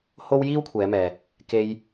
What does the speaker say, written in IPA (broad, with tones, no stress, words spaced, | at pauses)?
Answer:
ho˥w jiː˥wkʷʰɛː˨˧mɛː˨ | ke˧j